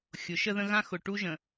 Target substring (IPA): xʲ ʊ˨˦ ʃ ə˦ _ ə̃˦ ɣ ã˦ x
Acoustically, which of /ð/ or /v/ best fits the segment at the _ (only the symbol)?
ð